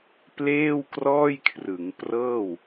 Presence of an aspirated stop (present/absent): present